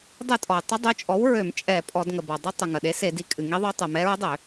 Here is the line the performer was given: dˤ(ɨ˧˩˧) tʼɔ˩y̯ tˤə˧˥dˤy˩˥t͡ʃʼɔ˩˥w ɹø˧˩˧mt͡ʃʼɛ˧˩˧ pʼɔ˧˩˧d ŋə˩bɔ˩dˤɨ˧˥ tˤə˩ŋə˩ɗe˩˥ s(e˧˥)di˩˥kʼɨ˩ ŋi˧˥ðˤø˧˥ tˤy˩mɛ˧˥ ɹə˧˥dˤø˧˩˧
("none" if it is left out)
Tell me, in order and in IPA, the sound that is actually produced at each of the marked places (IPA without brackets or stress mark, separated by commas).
ɨ˧˩˧, e˧˩˧